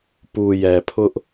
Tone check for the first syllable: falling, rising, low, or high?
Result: low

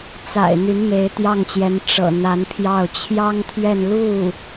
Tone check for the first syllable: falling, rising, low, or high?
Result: low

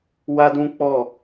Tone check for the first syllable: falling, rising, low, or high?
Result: high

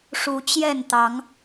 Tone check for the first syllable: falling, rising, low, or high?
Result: rising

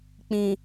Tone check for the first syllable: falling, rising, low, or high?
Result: low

